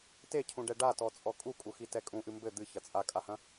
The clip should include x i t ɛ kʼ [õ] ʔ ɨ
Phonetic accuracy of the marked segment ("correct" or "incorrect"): incorrect